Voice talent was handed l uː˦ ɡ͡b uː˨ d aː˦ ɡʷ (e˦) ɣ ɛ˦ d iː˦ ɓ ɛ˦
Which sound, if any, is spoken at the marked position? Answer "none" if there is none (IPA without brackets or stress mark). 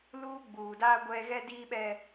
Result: ɛ˦